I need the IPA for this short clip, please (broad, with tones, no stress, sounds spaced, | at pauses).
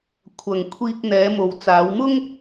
kʷʰ ɐ˨ ŋ kʷʰ iː˧ k̚ n̪ ɛː˨˧ m o˨ w t͡s aː˨˧ w m ʊ˥ ŋ